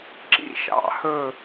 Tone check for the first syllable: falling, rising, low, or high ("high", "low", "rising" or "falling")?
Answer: high